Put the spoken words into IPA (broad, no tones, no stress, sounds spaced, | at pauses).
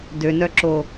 d ø n œ ǁ o